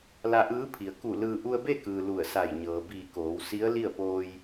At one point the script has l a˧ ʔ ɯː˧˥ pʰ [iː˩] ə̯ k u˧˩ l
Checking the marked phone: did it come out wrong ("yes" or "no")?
yes